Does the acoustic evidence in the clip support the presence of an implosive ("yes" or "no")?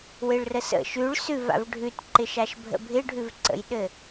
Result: yes